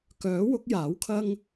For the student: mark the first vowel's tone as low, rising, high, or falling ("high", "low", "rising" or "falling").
rising